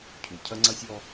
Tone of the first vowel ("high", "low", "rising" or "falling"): low